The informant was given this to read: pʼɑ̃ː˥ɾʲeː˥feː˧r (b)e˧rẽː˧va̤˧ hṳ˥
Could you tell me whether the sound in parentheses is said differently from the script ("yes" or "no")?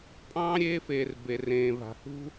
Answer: no